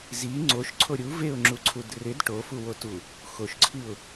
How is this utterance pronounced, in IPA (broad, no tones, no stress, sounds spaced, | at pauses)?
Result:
z i ŋ͡ǀ o ʃ ǀʰ o ɾʲ u v e ʊ̯ ŋ͡ǁ u ǀʰ u d r ɪ d ʈ o f u w o t u | x o ʃ ǀʰ i ʊ̯